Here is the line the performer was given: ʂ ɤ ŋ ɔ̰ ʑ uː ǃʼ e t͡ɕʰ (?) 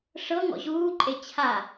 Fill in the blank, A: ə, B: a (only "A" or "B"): B